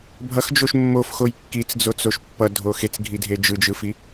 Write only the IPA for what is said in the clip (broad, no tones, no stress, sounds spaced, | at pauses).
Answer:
bʱ ʌ x d͡ʒ o ʃ mː o f x o j kː i t͡s d͡z o t͡s o ʃ pː ʌ dʱ o x e t͡s ɡʱ i dʱ e d͡ʒ ɯ d͡ʒ ɯ f i